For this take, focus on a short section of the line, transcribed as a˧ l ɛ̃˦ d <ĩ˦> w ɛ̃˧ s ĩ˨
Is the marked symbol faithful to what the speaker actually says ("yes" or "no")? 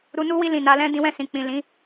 no